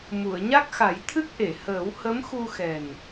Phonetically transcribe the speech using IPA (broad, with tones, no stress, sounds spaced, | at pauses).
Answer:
m u˨˩˨ ə̯ ɲ a˦˥ k̚ x a˨˩˦ j t̪ʰ ɨ˦˥ k̚ ʔ e˨˩˨ h əː˨˩˦ w h ə˧˥ m x u˧ x ɛ˨˩ n